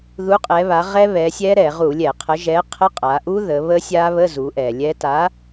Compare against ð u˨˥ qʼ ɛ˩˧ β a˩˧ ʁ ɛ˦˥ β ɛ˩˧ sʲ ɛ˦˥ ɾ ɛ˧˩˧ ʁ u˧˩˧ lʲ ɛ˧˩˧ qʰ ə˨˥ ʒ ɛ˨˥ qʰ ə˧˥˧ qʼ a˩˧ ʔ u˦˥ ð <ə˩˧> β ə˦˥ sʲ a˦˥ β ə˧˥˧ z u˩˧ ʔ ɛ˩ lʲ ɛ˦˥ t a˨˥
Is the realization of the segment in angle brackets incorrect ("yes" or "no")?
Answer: no